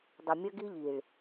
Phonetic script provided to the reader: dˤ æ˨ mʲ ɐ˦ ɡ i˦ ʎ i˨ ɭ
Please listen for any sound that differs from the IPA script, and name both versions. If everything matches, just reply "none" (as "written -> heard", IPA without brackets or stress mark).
æ˨ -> ɐ˨